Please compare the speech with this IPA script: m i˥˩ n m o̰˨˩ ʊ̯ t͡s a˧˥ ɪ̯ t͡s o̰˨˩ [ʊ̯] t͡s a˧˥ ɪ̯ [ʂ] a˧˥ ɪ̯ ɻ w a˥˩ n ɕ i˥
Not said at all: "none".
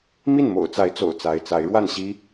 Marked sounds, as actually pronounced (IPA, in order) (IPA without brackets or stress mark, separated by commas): ʊ̯, t͡s